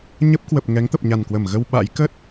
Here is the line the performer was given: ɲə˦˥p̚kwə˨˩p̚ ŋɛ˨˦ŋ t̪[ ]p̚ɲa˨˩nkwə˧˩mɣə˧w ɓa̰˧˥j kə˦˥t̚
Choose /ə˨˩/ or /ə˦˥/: ə˨˩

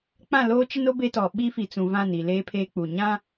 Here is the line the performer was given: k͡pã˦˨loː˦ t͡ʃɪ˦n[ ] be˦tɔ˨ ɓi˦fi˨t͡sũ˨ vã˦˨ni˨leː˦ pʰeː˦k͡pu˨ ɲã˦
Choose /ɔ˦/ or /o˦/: o˦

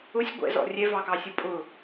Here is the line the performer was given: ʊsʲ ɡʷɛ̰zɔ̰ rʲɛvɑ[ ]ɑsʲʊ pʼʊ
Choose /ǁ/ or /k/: k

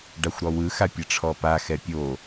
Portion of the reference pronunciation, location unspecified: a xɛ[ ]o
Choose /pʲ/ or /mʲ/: pʲ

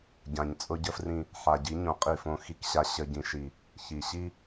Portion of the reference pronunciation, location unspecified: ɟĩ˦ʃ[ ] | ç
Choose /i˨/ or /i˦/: i˦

